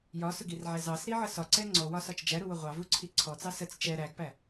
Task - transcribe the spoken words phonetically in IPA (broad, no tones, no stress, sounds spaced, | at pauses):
j ɒ s ʊ ɡ i r ʕ æ z ɑ s ɾ i ʕ ə s ɒ ǀ ɛ ŋ͡ǀ ɔ w ɒ s ɒ t͡ʃ d͡ʒ æ ɾ u w ʊ ʁʷ ɑ v u ǀʰ i ǀʰ ɔ t͡s ɑ s ə t͡s t͡ʃ ɛ ɾ æ ɡ p æ